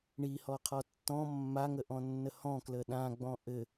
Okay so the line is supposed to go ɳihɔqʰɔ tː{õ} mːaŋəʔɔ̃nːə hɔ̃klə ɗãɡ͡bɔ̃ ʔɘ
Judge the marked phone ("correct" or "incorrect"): incorrect